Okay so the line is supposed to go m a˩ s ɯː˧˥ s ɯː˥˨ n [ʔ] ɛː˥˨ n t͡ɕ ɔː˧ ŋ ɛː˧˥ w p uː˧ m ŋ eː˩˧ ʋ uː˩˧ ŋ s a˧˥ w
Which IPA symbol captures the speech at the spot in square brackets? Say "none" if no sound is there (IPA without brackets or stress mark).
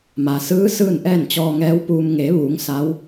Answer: ʔ